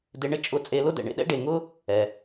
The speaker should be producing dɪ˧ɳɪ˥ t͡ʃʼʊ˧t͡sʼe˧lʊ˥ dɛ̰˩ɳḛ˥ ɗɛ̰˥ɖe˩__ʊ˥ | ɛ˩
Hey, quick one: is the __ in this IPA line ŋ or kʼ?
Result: ŋ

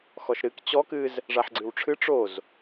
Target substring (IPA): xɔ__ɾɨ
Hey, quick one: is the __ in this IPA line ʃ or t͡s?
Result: ʃ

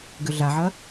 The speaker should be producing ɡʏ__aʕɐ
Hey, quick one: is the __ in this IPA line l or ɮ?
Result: ɮ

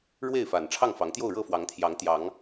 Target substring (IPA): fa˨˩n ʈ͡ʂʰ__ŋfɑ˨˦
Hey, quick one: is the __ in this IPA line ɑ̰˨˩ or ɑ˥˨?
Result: ɑ˥˨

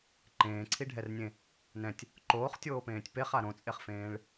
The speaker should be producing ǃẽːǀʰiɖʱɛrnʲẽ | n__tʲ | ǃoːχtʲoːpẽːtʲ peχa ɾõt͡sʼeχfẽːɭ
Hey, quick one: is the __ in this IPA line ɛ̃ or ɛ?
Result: ɛ̃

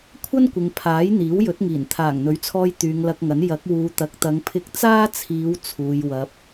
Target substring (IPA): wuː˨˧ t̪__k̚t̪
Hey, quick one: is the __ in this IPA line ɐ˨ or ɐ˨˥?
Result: ɐ˨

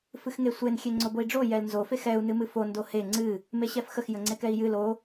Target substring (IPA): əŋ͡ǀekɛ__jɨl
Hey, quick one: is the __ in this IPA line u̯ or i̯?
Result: i̯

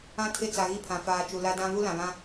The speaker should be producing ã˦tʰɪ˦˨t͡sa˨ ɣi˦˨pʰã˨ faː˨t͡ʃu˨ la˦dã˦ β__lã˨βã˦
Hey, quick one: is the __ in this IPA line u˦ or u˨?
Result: u˦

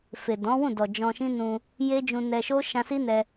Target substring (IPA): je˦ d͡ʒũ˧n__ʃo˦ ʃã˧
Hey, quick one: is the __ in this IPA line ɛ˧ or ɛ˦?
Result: ɛ˧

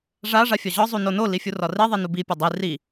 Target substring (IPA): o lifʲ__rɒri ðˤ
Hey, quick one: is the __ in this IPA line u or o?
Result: u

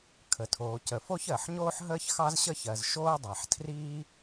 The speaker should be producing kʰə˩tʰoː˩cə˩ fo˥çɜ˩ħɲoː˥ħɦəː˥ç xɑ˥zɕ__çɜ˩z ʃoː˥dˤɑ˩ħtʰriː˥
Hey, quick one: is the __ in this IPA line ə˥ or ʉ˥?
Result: ə˥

